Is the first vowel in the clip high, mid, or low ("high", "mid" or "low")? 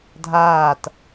low